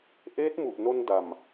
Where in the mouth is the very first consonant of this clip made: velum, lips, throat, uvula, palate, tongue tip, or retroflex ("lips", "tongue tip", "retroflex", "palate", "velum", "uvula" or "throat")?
throat